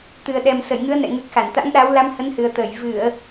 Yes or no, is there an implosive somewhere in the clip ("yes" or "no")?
yes